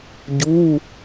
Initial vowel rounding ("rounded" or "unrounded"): rounded